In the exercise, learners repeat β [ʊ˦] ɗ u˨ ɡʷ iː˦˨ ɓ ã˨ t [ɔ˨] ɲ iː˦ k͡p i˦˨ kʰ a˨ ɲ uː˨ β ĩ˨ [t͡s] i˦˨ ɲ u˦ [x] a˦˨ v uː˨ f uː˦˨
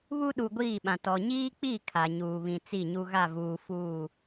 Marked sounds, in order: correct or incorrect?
incorrect: u˦, correct, correct, incorrect: ɣ

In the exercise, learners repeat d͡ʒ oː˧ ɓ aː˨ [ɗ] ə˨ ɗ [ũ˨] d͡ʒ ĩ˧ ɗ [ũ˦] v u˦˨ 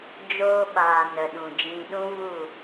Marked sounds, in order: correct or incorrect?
incorrect: n, correct, correct

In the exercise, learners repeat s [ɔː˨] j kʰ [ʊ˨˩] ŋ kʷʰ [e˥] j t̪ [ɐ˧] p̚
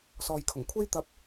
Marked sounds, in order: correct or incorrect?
correct, correct, correct, correct

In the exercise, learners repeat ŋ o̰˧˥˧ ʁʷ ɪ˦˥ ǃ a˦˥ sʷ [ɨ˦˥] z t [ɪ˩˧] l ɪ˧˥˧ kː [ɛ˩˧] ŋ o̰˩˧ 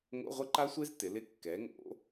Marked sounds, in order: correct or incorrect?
incorrect: e˦˥, correct, correct

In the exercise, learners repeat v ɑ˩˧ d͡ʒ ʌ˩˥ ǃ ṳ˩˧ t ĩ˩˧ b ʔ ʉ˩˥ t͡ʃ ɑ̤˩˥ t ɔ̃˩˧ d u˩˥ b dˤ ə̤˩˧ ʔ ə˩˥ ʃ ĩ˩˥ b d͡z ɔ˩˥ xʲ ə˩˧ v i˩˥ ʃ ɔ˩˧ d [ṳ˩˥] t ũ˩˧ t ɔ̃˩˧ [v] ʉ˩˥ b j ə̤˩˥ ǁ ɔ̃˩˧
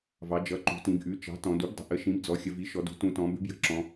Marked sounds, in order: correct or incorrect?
correct, incorrect: b

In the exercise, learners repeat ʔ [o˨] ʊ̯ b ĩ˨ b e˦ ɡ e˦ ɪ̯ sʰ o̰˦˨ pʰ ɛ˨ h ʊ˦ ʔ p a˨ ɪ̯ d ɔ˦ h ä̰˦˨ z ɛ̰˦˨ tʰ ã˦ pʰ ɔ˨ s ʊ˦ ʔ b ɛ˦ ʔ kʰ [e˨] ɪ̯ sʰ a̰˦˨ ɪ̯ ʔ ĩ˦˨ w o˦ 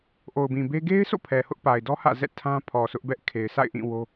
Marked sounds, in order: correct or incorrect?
correct, correct

